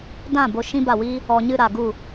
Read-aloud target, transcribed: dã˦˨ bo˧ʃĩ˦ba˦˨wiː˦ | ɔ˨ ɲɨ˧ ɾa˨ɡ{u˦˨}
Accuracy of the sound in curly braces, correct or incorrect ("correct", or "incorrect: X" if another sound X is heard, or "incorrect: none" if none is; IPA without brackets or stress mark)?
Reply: correct